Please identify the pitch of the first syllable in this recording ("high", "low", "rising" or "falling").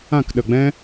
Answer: falling